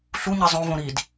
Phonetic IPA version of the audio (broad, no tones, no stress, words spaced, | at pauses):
ɬuɲɛ zˤõvõ ɾid